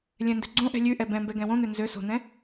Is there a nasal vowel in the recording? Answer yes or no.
yes